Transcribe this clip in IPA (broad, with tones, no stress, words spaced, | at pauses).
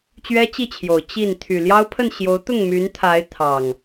t͡ɕɥɛ˦t͡ɕi˥˨t͡ɕʰjo˨˩ʊ̯ t͡ɕi˥˨n t̪ʰy˨˩ljɑ˦ʊ̯pʰə˥˨n ɕjo˨˦ʊ̯t̪ʊ˥˨ŋmy˨˦n t̪ʰa˨˦ɪ̯ t̪ʰɑ˨˩ŋ